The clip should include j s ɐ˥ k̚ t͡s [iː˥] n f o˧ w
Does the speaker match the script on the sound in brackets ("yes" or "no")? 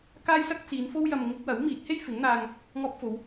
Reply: no